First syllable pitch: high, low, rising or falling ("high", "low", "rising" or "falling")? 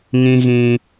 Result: high